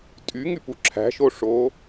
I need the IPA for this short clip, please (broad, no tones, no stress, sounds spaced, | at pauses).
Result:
tʼ y ŋ y p u ǁʰ æ̤ ʃ o ʂ oː